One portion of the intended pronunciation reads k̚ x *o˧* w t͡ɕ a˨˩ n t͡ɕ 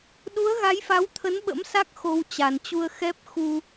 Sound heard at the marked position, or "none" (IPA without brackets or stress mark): o˧